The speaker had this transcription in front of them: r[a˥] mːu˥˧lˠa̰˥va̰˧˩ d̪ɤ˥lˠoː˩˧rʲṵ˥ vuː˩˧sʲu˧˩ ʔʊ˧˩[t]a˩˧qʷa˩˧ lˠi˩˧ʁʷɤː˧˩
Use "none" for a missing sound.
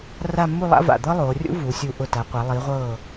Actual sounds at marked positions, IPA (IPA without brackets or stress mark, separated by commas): a˥˧, t